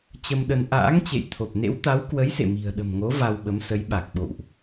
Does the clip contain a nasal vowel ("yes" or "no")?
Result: no